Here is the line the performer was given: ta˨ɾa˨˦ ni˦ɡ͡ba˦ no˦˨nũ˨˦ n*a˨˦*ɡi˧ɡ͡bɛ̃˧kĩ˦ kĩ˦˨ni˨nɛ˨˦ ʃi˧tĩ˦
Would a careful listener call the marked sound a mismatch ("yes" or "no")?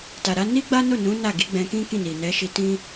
yes